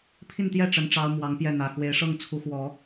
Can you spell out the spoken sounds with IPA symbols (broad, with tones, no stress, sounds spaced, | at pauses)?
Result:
pʰ i˥˧ n t̪ j ɛ˥˩ ʈ͡ʂ ə˥ n ʈ͡ʂ ɑ˥ ʊ̯ m w ɑ˧˥ ŋ p j ɛ˥˩ n̪ ä˨˩ x w e˧˥ ɪ̯ ʂ ɤ˥˩ ŋ t͡sʰ u˧˥ x w ɔ˨˩˦